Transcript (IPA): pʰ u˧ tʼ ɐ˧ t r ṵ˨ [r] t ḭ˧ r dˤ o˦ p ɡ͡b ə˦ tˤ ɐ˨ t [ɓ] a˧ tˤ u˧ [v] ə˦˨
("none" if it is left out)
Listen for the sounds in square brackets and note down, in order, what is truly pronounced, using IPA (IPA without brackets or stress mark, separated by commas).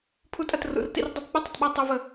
r, ɓ, v